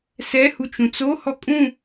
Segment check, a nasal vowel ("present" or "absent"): present